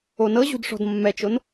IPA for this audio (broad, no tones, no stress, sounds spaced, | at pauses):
o n ɤ ʑ ṳ d ʂ ɔ̤ d mː ɛ t͡ʃ o n